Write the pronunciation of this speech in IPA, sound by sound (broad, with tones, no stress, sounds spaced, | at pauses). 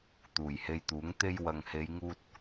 t̪ uː˨˩ j h e˧ j t̪ uː˨˥ ŋ t̪ e˧ j w ɐ˨ ŋ h e˨˧ j ŋ uː˧ t̚